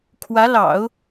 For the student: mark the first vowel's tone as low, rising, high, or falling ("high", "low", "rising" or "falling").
rising